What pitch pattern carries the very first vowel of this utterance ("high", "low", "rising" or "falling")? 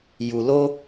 low